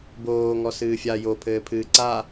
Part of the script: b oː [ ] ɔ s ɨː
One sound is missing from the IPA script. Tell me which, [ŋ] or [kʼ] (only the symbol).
ŋ